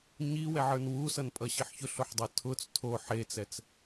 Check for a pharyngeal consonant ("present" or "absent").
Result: present